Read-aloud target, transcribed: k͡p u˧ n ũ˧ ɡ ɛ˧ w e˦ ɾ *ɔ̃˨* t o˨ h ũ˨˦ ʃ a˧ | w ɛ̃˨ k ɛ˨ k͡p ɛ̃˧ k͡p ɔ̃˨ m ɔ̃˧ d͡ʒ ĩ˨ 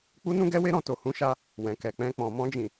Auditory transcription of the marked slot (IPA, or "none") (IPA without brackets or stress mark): ɔ̃˧